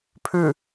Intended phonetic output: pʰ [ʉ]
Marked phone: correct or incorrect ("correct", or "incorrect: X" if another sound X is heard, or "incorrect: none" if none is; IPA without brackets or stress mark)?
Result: correct